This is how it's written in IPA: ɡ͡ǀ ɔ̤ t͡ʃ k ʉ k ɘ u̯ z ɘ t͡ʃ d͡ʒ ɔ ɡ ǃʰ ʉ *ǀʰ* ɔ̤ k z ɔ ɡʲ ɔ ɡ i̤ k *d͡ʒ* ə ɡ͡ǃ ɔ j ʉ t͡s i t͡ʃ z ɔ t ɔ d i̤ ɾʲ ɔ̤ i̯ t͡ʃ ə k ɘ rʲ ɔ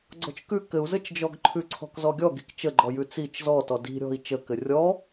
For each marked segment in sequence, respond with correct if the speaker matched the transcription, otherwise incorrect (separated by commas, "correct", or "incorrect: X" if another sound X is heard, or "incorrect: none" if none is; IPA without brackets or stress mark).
correct, incorrect: t͡ʃ